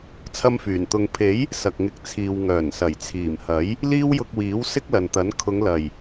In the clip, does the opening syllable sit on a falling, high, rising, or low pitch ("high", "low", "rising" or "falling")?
high